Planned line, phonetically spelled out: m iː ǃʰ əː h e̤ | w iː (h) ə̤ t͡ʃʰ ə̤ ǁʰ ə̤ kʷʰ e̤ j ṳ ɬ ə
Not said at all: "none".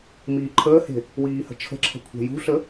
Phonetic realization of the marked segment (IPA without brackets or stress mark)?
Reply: h